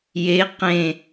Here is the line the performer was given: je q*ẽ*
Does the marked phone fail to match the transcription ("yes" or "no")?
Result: no